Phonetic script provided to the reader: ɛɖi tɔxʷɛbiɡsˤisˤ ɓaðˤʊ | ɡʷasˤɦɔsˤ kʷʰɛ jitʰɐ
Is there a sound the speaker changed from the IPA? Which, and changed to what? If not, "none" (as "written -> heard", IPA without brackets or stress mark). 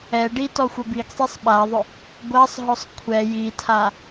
ɐ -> a